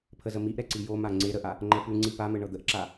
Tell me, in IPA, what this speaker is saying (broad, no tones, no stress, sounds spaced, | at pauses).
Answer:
pʰ ə z ə m i ʔ ɾ ɛ ǀ i j o m a ŋ͡ǀ e ɾ ə ʔ a | ŋ͡ǃ ɛ p ʉ ŋ͡ǀ i p a m ə ɳ ɤ d̪ ə ʔ ǁ a